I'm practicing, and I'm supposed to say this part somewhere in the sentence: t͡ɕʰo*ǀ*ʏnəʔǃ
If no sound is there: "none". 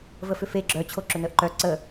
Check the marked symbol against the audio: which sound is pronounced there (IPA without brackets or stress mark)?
ǁ